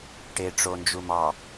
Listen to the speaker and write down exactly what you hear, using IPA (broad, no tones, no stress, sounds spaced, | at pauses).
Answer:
ʈ e ʈ͡ʂ o n d͡ʒ u m ɑ